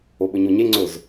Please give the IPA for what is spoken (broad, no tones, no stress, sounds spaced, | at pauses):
o ɓ ɵ ɲ o ɲ e ŋ͡ǀ ɵ z